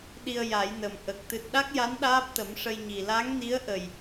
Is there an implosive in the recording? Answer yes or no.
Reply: yes